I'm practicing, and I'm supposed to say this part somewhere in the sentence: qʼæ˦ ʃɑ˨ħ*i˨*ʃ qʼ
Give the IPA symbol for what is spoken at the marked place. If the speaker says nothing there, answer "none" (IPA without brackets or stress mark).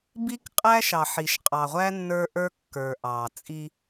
i˨